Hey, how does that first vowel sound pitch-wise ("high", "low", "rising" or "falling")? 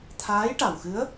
rising